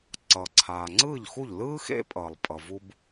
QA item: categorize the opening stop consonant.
click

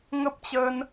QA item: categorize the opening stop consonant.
plain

